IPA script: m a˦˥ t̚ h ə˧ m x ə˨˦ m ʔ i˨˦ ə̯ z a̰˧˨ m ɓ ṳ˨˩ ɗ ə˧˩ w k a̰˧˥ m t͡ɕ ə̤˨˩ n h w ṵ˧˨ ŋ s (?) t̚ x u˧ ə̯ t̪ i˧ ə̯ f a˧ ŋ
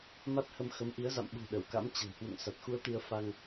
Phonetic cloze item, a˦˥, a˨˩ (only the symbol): a˨˩